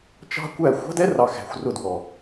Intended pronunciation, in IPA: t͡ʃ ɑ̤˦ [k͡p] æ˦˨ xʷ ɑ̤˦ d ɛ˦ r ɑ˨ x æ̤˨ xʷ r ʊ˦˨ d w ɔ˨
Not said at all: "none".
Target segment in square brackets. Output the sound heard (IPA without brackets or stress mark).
kʷ